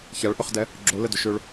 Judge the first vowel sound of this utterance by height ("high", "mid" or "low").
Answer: low